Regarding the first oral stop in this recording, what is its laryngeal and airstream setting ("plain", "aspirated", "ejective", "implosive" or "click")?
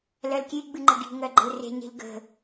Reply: plain